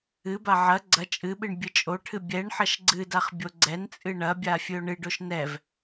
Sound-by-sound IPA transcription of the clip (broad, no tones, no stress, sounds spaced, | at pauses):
ɨ b a ʕ ɐ ɡ͡ǀ ɐ t͡ʃʼ ɨ ɓ ɨ ɳ bʲ ɨ t͡ʃʼ o ʈʰ ɨ bʲ ɛ ɳ ħ ɐ ʃ ɡ͡ǀ ɨ d a χ bʲ o ɡ͡ǀ ɛ n t͡sʼ ɨ ɳ ɐ bʲ a fʲ ɨ o̯ ɳ ɨ ɖ o ʃ n ɛ v